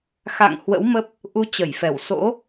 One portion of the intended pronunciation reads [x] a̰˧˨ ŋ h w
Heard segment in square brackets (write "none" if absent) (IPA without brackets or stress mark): x